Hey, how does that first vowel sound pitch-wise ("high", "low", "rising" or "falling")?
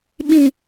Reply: low